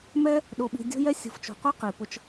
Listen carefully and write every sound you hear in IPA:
m ɛ˦ | ɗ o˧ ɓ i̤˧ dʲ o̤˦ j ɛ˦ sʲ ṳ˨ f t͡ʃ o̤˨ qʷ œ˧ q i˨ p ʊ˧ t͡ʃ

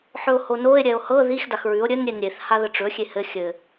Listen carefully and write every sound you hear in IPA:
ħ ɵ o̯ h o n o e̯ ɾʲ ɛ o̯ h ɤ ð i x d a x ɹ ʉ o̯ ɾʲ ɘ n ɾʲ e n ɾʲ e θ h a ð ə ʈ͡ʂ ɵ xʲ e h ɘ xʲ ɘ

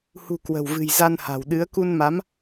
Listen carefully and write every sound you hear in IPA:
h ṳ˨˩ k w ə̤˨˩ w v ɨ̤˨˩ j z a˧ n h a̤˨˩ w ɗ ɨ˨˦ ə̯ k u˧ n m a˨˦ m

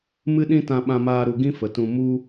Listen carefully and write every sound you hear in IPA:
m ɨ˦ ɗ ĩ˦ t ã˧ ɓ ã˧ m aː˧ ɾ u˨ ɡ ĩ˦ f ə˨ t ũ˧ m u˧

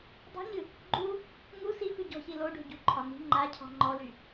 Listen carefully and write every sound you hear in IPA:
dˤ o̤ ɲ ɨ | ɡ͡ǃ u | ŋ u s i f ʉ ɟ ɔ̤ ç i l o ɖ o̤ ɟ ṳ ǃʰ ɒ n i̤ ŋ͡ǃ a cʰ ɔ̤ ŋ͡ǃ ɔ l y

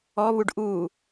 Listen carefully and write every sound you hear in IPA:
ɔ β u ɖ ʔ uː

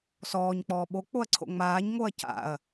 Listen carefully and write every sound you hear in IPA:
s ɔː ɲ k͡p ɔː ɓ o k͡p o ɐ̯ ǀʰ o̰ ŋ͡m aː ɲ ŋ o ɐ̯ c a̰ ɐ̯

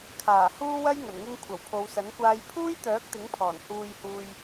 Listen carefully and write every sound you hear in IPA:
kʰ aː˨˩ h uː˥ w ɐ˥ j ŋ ɐ˨˩ n ŋ ɪ˧ ŋ kʷʰ ɐ˨˩ w pʰ o˨˧ w s ɐ˨˥ n kʷ aː˧ j pʰ uː˥ j t̪ œː˨˥ k̚ t̪ ɪ˨˥ ŋ pʰ ɔː˨˩ n h uː˧ j h uː˧ j

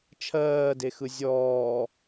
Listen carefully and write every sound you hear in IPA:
t͡ʃʰ ɜː d e x ɯ zʲ ɔː

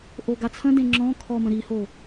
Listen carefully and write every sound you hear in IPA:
ʔ o ɡ a t͡sʰ ə̃ d ẽ ŋ͡ǁ ɔ̃ kʰ ɔ m ə̃ ɾ i h o

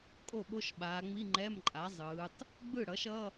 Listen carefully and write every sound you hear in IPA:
kʼ o˥˩ ɓ o˧˥˧ ʃ ɓ aː˩˧ ŋ͡m i˧˥˧ ŋ͡ǃ ɛ˧˥˧ m ǃʼ a˩˥ zˤ ɯː˩˧ tˤ | ɡ͡b ɯ˥˩ ɽ ʌ˩˥ ʃ ʌ˧˥˧

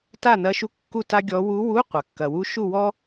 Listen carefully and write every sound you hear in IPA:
t a˥˨ n ɐ˧˥ ʃ u˧˥˧ kː u˥˨ t a˥ ɡʲ ɔ˧˥ w u˧˥ w u˧˥˧ qʷ ɐ˩ kː ɐ˩ w u˧˥ ʃ u˥˨ w ɔ˥

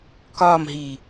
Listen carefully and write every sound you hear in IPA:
k ɒː m ɦ iː

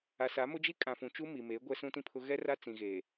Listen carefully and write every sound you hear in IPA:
a˨ s a˨˦ m ʊ˦ d͡ʒ i˦ kʼ ã˨ f ũ˨ t͡ʃ u˦ m i˨ m eː˨˦ ɡʷ ɛ˦ s ũ˦ t ĩ˦ pʰ ʊ˦ ɣ ɛ˦ r a˦ t͡s ĩ˨ ɣ eː˨

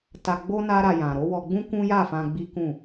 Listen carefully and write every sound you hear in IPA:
t a˧ ɡ͡b o˦ n a˦ ɾ a˧ j ã˨ ɾ o˨˦ w ɔ˧ ɡ͡b ũ˦ k ũ˦ j a˦˨ f ã˧ ɡ͡b i˦ k ũ˦˨

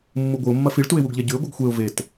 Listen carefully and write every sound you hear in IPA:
mː u ɡʷ ɨ ʊ̯ mː ɐ f i ɭ t u ɪ̯ w u ɡ ʎ e ɟ ʉ ɪ̯ ɡʷ ɨ ɡ xʷ e ʊ̯ v e t

